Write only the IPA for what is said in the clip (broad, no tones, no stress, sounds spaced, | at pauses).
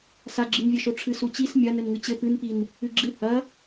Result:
s a ɡ͡ǁ ɨ n vʲ ɘ ʃ o ʈ͡ʂʰ ɨ s u t͡ɕ i s mʲ ɐ n ɘ n ŋ ɨ t͡ɕ ɘ p ɨ n p i n | ɨ ɡ͡ǁ ɨ h ɐ